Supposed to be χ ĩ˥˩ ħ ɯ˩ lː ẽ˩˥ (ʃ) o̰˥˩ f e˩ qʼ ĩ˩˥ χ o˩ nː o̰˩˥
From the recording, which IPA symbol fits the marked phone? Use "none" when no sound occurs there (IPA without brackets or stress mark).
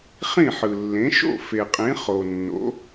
ʃ